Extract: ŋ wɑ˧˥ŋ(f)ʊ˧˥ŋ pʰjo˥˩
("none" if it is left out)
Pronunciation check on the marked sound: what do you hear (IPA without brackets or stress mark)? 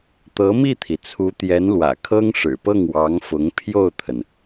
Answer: f